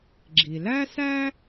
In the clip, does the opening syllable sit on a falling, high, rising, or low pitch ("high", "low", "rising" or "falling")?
low